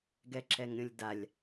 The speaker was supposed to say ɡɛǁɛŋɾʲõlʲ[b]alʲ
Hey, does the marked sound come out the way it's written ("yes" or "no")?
no